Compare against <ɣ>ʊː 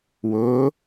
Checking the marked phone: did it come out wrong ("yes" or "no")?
yes